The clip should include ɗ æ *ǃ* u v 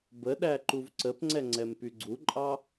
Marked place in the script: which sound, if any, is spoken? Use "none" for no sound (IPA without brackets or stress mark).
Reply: ǃ